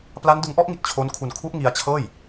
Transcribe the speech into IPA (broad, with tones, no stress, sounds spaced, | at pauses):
p l a˦˥ n d ɯ˧ ŋ ʔ ɔ˥˩ ʔ ŋ i˨˩ t̚ t͡ɕʰ o˦˥ n kʰ u˧ n kʰ u˦˥ ʔ ŋ i˧ a̯ t͡ɕʰ ɤː˥˩ j